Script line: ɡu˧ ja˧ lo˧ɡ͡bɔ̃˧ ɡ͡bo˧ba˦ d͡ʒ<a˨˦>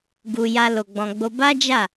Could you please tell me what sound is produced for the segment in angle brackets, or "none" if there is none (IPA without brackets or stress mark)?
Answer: a˦˨